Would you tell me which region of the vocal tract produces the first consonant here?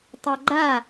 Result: tongue tip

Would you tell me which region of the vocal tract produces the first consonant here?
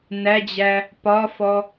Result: tongue tip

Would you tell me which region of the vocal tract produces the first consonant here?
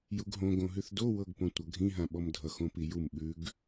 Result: palate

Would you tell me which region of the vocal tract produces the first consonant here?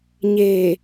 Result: palate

